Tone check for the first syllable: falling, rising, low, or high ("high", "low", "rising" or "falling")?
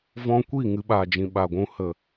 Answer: high